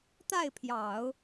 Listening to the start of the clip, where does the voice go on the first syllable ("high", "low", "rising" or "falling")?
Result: falling